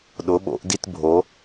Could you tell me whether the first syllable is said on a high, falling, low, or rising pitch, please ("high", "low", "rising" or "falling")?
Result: rising